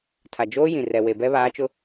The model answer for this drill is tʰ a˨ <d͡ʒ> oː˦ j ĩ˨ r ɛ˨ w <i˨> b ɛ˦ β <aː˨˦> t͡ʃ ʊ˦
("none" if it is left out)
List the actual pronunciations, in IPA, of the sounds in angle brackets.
d͡ʒ, e˨, aː˨˦

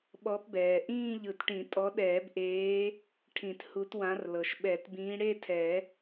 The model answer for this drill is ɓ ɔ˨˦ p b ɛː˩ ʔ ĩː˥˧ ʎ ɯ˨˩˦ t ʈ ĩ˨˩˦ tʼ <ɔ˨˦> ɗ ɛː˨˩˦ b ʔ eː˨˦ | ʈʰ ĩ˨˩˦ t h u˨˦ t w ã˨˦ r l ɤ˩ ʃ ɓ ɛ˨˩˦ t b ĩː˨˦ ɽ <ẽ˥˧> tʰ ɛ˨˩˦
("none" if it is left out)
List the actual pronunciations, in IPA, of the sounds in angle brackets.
ɔ˨˦, e˥˧

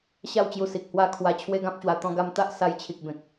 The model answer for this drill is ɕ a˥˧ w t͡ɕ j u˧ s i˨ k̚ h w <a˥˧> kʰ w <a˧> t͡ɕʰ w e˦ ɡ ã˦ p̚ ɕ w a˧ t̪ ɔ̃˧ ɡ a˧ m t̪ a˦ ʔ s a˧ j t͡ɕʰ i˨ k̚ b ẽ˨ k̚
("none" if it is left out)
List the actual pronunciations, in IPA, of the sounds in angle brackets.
a˧, a˧

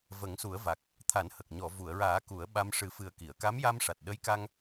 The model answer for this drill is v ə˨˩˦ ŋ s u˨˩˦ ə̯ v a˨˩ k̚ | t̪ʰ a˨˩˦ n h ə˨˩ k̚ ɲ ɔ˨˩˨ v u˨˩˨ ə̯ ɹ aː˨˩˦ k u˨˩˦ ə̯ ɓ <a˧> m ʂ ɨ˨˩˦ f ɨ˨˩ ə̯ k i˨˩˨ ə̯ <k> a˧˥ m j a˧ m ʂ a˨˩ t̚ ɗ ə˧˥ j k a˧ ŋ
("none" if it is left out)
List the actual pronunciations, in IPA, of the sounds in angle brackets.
a˧, k

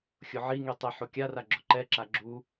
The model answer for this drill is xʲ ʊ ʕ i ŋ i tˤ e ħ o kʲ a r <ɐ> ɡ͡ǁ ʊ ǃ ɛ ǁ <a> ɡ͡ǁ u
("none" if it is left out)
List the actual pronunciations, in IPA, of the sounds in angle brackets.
a, a

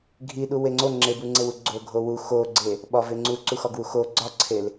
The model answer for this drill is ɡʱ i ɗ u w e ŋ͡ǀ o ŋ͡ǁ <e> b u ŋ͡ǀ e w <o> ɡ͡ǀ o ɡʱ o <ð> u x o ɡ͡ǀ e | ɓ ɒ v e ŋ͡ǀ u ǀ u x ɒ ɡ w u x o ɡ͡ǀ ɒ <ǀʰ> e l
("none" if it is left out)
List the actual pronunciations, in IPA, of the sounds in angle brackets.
e, u, w, ǀʰ

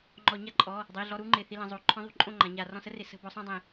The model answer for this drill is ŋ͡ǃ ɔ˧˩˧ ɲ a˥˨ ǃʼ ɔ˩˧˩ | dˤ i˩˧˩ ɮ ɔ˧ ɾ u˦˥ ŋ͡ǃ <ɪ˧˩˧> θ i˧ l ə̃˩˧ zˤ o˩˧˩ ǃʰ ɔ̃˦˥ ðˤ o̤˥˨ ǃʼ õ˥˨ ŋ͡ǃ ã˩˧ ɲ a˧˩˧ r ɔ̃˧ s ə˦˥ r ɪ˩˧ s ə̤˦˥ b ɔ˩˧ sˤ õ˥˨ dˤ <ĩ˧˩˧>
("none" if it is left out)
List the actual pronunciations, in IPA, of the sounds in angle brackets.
ɪ˩˧˩, ĩ˧˩˧

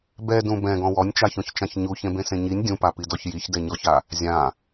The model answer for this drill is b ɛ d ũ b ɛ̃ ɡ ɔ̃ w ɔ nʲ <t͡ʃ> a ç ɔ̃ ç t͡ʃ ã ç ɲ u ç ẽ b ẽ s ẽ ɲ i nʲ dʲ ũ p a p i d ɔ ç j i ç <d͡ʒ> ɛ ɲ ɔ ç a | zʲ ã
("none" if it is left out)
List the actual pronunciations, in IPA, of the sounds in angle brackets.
t͡ʃ, d

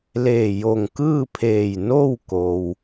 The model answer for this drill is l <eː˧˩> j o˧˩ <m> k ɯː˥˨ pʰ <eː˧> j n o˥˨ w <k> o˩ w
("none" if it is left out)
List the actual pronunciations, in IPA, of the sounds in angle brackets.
eː˧˩, ŋ, eː˧˩, k

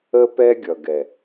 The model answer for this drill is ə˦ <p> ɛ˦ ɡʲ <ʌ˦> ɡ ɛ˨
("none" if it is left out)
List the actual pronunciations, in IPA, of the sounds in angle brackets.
p, ʌ˨

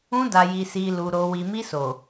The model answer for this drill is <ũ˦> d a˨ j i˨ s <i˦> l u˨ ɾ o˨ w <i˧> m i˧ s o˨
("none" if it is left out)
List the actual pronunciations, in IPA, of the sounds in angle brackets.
ũ˧, i˨, i˨

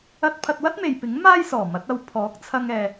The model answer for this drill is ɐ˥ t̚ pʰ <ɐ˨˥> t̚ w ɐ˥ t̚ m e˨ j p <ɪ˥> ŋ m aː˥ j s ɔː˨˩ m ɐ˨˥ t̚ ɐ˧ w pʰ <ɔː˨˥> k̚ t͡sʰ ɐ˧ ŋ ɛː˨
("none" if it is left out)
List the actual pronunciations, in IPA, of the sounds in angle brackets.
ɐ˧, ɪ˨˥, ɔː˨˥

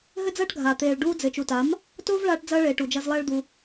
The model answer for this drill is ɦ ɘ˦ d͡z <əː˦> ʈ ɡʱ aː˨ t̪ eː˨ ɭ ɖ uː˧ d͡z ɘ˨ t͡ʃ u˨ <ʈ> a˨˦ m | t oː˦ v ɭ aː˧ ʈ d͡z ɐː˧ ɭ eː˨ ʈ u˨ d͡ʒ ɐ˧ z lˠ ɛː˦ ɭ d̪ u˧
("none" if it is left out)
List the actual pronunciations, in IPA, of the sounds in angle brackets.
ɐː˦, t

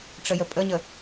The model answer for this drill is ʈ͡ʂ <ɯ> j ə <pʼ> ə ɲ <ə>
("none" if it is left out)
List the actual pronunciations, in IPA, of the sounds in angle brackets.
ə, pʼ, ə

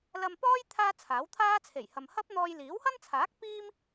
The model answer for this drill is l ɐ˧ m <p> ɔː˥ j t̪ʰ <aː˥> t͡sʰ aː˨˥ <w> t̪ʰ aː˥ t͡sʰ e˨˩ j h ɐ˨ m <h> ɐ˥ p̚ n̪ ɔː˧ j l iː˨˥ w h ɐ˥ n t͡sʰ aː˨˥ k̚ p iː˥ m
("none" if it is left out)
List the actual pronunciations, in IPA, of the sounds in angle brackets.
p, aː˥, w, h

